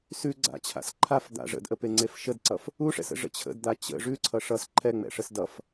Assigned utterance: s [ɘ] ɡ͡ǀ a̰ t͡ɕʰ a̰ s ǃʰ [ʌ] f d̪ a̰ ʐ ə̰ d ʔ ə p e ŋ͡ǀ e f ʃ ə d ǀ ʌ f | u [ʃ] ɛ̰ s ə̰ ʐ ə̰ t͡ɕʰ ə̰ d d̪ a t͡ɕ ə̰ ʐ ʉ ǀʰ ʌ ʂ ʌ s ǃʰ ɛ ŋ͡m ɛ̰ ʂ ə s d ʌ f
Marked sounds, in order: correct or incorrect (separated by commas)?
incorrect, incorrect, incorrect